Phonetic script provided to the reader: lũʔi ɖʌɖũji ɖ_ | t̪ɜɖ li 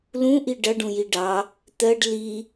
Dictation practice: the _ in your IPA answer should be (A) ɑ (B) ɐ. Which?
A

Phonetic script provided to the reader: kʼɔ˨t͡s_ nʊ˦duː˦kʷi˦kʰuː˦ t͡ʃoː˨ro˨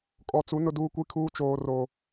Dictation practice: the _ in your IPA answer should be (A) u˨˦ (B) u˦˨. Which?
A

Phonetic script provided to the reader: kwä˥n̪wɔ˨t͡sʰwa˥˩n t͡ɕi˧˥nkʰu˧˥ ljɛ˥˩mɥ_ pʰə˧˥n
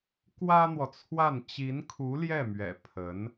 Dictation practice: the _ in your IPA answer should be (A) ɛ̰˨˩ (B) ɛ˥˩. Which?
A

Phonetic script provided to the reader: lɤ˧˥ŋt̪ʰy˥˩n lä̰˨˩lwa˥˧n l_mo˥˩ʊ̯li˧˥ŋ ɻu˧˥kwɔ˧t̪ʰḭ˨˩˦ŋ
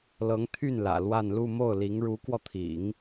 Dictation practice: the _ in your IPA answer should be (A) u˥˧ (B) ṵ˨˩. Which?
A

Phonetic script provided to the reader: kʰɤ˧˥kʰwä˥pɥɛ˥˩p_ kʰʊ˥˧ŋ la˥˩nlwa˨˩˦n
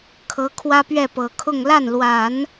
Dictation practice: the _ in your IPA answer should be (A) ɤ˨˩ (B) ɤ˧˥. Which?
A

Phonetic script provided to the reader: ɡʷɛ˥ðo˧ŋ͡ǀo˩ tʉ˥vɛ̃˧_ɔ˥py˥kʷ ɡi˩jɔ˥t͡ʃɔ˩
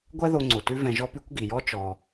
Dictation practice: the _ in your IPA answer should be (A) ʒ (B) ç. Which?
A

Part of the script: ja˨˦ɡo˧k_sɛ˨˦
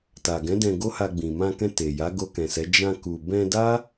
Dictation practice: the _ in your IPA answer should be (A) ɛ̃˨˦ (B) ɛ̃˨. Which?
B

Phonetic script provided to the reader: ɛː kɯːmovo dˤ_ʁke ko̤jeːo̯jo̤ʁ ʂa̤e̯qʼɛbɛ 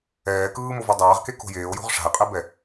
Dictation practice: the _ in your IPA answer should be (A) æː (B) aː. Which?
B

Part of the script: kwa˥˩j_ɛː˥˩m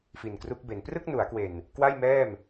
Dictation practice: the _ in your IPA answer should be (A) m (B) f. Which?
A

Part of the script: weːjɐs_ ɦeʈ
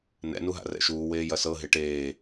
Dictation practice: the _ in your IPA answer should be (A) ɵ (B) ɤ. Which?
B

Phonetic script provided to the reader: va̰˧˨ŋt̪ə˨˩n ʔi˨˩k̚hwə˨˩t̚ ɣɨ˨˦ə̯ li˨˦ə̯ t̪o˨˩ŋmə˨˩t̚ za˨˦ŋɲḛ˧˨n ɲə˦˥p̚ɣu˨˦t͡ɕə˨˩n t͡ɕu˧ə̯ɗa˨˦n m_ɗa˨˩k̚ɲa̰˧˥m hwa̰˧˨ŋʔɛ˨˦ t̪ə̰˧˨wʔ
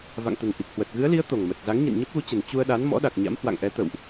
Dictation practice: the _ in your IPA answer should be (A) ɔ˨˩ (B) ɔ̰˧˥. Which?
B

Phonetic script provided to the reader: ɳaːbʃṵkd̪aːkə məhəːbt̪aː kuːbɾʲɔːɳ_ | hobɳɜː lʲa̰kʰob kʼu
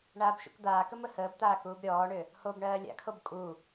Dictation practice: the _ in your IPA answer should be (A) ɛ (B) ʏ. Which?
B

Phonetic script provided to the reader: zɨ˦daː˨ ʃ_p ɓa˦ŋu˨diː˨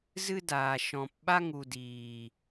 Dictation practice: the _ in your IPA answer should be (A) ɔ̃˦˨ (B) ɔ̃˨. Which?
B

